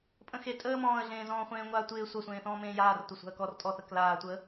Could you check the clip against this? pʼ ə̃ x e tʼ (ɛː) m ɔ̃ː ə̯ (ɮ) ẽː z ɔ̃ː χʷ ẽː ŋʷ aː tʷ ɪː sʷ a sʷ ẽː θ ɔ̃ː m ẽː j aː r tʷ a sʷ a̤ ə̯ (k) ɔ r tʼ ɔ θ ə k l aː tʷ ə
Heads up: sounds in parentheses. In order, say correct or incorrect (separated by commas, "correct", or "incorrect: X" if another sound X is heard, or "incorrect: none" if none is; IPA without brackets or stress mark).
incorrect: əː, correct, correct